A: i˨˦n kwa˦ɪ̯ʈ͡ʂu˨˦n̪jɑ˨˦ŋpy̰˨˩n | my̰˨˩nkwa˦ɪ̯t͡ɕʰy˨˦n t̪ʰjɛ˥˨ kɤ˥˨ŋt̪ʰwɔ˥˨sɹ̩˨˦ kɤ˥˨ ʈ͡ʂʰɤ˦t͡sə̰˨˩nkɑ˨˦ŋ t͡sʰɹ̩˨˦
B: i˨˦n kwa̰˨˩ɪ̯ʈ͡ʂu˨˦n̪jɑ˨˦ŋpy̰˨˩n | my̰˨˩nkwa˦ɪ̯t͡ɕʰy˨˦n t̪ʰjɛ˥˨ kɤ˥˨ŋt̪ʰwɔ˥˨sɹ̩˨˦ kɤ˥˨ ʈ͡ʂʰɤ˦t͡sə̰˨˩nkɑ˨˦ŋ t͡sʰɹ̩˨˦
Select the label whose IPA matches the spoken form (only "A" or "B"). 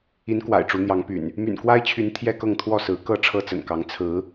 B